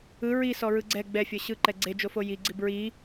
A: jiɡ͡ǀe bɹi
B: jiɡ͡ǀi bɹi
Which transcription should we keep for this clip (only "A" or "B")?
B